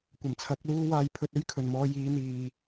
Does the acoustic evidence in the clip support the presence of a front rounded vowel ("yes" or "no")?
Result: no